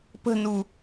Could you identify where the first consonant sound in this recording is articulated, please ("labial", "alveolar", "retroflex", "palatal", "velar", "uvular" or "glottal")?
labial